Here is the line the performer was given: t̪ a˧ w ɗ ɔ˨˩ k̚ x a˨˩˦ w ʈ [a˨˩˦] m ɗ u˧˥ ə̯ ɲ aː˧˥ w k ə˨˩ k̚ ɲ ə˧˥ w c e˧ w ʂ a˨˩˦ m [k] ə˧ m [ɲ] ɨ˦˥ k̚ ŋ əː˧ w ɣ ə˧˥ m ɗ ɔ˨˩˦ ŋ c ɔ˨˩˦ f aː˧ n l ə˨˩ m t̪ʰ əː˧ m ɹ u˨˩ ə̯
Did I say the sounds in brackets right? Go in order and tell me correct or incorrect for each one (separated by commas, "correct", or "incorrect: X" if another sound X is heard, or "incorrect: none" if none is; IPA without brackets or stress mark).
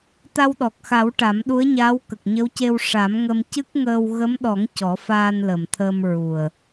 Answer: correct, incorrect: ŋ, incorrect: c